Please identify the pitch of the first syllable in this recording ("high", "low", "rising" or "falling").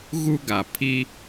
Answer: high